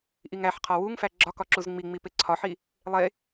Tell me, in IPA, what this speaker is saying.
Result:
ʔ i ŋ æ ħ qʰ ɒ w u ŋ f æ ɡ͡ǁ ɒ k ɒ ǁ u z ŋ͡m i ŋ͡m i p e ǀʰ ɒ ħ i | lˠ e

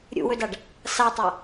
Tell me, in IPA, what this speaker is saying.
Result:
ɾʲ ṵ w ɵ d a ɖ | s a tˤ a

